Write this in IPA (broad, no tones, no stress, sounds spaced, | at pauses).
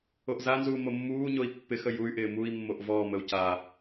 o ʔ z a n z uː m o mː uː ɲ o i̯ pː ɪ x ə j u y̯ ʔ ɪː m u i̯ mː o ʔ v ɔː m ə u̯ c a